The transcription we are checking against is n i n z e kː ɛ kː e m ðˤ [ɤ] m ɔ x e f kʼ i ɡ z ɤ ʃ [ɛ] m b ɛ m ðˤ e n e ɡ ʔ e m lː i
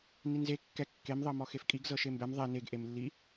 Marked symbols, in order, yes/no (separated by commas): yes, no